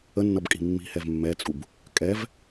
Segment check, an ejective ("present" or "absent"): present